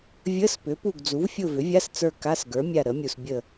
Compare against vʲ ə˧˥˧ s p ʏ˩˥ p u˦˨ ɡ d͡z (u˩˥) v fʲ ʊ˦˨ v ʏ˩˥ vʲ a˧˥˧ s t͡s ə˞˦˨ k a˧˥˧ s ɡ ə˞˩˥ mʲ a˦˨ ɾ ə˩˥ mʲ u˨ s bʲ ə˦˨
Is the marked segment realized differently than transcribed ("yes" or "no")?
no